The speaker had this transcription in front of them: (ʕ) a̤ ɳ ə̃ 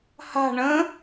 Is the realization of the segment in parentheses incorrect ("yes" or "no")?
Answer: yes